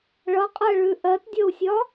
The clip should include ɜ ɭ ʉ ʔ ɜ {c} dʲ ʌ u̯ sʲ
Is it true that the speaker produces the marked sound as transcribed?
no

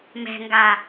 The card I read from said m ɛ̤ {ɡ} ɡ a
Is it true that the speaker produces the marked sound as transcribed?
no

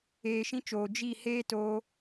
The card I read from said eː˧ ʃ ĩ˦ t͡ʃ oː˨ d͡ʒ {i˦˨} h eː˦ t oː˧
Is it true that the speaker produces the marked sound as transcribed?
yes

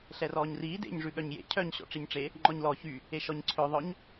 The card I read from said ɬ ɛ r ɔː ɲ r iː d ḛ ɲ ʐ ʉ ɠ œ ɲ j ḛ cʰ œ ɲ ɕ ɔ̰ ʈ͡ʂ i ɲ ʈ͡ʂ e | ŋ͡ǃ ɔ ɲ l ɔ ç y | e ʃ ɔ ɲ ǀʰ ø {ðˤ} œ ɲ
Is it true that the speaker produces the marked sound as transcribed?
yes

